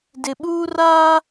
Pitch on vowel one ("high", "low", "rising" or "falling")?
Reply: low